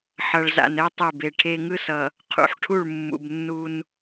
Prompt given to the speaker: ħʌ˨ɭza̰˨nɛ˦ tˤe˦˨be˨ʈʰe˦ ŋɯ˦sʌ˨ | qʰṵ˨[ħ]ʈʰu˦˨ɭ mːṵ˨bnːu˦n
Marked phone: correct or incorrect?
correct